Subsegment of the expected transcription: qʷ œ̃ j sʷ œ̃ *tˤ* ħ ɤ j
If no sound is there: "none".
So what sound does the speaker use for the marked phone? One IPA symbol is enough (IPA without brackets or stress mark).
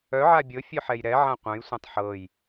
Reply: tˤ